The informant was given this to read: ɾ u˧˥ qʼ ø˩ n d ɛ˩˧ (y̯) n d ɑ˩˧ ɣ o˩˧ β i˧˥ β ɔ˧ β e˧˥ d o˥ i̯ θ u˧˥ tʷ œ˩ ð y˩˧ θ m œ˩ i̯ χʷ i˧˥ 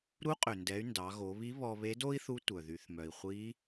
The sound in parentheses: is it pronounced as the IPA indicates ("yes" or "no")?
yes